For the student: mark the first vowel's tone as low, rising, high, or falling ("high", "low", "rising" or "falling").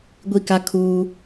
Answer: falling